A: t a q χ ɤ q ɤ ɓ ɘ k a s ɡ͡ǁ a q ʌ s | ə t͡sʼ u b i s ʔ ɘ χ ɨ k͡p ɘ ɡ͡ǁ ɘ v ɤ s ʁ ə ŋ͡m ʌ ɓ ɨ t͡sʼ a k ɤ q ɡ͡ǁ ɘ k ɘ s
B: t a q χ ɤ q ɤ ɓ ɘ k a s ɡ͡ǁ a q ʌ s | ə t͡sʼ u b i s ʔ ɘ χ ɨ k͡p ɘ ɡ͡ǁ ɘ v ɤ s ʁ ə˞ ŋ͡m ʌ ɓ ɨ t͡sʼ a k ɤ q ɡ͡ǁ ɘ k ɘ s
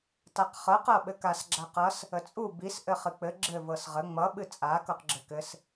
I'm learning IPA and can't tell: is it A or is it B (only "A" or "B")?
A